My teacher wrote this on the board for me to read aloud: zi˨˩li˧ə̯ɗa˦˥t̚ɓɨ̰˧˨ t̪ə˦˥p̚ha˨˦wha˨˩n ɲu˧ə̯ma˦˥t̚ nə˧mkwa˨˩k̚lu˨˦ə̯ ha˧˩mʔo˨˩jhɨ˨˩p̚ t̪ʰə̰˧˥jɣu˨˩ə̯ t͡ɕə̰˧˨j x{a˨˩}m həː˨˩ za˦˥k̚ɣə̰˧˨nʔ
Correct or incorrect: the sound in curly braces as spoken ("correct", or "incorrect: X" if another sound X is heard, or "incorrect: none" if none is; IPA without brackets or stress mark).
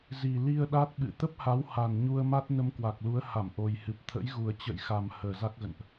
correct